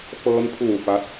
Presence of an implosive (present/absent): absent